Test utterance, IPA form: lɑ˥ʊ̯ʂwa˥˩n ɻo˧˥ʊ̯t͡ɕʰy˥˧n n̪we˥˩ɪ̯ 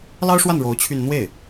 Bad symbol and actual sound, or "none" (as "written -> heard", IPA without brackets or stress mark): none